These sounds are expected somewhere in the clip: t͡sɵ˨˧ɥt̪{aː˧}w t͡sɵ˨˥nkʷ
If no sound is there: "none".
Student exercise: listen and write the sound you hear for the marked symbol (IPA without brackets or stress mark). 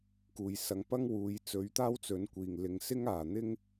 aː˥